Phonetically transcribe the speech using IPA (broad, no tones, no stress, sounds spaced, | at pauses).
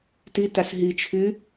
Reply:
t i t a s ɦ i t͡ʃʰ y